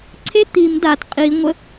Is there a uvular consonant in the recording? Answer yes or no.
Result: yes